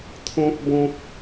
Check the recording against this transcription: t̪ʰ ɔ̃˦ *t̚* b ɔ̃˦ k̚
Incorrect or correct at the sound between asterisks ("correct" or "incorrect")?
incorrect